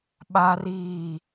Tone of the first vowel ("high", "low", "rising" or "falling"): high